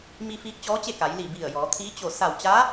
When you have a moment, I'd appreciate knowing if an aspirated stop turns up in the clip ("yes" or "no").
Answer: yes